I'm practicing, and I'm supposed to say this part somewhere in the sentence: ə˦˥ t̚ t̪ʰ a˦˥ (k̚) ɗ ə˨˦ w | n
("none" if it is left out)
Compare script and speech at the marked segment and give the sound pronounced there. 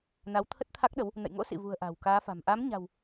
k̚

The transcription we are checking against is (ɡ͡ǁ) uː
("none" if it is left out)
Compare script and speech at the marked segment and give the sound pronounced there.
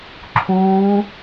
ǁʰ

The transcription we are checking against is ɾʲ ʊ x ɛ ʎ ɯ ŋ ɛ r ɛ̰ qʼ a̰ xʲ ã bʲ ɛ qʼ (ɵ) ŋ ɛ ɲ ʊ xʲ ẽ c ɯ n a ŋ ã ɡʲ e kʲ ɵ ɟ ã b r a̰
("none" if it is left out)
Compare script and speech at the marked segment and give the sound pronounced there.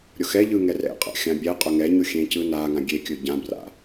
ɵ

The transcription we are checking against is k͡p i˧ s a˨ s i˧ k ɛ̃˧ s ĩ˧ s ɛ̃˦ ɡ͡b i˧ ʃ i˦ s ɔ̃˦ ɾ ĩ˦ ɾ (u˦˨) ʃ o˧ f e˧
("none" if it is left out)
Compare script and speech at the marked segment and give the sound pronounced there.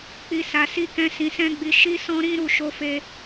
u˦˨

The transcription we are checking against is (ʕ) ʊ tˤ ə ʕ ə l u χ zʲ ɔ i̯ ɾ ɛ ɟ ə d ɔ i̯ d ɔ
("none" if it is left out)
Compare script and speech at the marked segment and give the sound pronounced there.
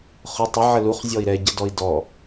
χ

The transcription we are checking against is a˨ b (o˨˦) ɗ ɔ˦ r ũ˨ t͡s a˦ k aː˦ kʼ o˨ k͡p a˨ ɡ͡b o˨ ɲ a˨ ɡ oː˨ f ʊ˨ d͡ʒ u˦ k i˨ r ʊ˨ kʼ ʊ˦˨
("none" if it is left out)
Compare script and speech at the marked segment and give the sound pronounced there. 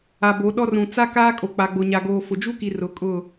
o˨˦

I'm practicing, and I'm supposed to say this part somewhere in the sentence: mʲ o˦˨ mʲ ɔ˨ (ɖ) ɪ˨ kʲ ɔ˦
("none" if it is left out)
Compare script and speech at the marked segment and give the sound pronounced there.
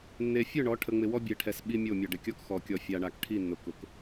ɖ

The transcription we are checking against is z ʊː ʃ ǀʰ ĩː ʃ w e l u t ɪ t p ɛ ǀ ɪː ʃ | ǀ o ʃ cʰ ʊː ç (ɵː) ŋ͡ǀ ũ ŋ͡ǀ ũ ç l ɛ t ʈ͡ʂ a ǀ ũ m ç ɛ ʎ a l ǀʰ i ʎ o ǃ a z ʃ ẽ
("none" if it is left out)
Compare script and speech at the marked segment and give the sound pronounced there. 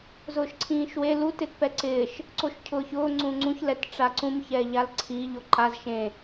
ʊː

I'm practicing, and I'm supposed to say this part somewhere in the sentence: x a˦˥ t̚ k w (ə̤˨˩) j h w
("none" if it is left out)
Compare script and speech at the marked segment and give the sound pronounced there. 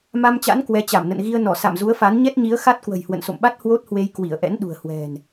ə̤˨˩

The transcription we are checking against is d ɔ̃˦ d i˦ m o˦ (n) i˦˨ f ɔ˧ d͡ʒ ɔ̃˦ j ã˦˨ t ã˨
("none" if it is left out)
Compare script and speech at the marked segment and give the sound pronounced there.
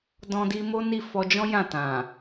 n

